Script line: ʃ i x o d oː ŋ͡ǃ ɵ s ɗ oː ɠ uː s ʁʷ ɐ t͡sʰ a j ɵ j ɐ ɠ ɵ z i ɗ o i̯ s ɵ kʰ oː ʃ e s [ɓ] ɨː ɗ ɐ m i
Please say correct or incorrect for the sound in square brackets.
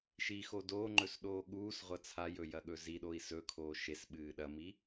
correct